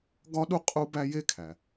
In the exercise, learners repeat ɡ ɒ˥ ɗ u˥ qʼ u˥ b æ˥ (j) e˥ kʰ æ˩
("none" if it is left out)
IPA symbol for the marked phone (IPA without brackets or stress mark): j